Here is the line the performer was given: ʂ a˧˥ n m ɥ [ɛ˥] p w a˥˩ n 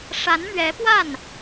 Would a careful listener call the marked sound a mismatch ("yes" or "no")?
yes